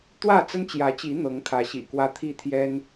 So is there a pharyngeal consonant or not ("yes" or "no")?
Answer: no